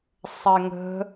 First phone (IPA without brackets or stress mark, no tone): sˤ